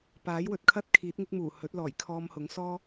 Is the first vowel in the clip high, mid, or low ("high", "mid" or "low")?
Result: low